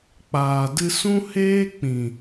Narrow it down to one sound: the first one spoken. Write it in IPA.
k͡p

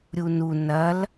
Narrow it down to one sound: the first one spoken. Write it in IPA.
ɾʲ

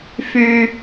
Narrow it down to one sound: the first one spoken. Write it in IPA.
f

